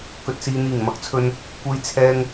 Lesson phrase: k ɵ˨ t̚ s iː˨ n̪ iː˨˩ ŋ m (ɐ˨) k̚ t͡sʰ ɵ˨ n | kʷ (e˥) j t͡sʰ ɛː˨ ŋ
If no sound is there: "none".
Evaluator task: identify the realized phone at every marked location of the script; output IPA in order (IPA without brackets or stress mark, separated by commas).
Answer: ɐ˨˥, e˨